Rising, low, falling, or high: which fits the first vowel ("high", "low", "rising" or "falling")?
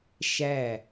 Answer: falling